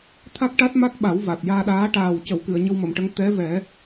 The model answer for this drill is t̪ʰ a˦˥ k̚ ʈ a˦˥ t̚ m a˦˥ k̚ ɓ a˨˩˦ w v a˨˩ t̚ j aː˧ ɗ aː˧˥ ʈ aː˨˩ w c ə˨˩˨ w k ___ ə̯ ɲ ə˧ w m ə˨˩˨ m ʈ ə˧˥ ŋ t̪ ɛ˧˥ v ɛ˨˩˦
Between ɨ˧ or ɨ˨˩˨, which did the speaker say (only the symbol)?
ɨ˨˩˨